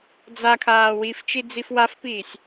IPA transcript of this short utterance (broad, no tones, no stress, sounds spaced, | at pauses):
d͡z a kʰ aː w i f t͡ʃ i d͡z i f w a f p iː sʲ